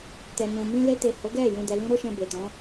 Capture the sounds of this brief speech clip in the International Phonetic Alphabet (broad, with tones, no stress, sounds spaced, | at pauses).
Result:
t ɛ˨ n ũ˨ m ĩ˧ l e˧ t e˨ h o˨˦ ɡ ɛ˦˨ j ũ˨ d ɛ˨ l ĩ˧ ɾ o˦ ʃ ɛ̃˧ b e˨ t ɔ̃˨˦